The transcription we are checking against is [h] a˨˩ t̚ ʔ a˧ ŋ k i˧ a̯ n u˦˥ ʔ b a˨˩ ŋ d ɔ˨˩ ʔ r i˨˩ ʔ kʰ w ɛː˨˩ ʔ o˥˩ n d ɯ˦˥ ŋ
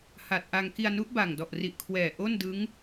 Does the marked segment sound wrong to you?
no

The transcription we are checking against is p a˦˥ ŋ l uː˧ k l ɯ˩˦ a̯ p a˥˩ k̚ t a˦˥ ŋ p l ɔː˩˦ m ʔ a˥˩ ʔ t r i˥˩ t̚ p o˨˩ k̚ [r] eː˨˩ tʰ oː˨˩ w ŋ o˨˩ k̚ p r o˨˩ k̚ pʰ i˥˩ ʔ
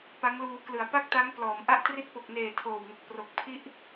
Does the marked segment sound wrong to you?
yes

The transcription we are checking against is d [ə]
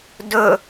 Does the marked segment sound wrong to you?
yes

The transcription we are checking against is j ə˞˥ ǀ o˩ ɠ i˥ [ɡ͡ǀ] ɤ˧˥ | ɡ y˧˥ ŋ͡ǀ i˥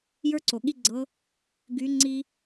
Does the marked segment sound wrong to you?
no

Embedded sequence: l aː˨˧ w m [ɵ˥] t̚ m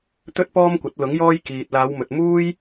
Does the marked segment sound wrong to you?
yes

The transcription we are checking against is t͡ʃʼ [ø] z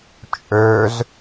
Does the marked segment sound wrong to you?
no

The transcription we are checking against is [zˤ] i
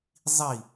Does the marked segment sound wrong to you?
no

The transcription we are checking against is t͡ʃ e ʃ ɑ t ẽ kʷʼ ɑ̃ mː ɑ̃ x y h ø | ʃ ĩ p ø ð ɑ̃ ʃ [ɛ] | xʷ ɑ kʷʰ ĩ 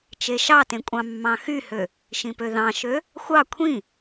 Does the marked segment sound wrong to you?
yes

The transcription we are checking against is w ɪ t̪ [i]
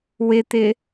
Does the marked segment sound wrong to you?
yes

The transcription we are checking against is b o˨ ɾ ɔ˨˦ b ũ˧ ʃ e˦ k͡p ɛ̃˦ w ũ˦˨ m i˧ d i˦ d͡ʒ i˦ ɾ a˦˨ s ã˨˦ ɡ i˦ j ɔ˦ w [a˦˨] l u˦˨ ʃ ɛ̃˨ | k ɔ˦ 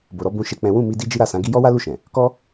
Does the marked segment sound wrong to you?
yes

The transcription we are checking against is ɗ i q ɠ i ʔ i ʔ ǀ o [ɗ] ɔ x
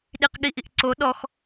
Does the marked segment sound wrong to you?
no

